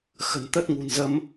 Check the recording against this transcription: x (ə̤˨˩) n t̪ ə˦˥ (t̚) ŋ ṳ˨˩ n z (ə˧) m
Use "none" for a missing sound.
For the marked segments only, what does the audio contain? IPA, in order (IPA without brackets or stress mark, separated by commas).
ə̤˨˩, t̚, ə˧